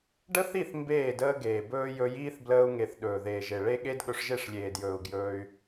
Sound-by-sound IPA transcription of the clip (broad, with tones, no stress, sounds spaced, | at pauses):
ɖ ə˦ θ i˦˨ θ m b eː˦˨ d əː˦ ɡ eː˨ b ɵː˦ j ɵ˧ j iː˦ θ b l əː˧ u̯ ŋ e˨ θ ɗ ɵː˨ ð eː˨ ʒ e˨ ɭ e˦ ɠ e˦ d ɠ ɵ˧ ʂ ʒ e˦˨ ʂ lʲ eː˨ d j ɵː˨ u̯ ɡ j ɵː˧ y̯